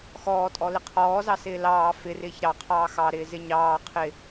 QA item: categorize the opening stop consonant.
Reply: ejective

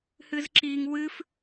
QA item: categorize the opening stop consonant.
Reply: click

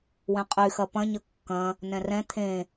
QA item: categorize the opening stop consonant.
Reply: ejective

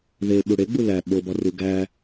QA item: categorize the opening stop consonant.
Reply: implosive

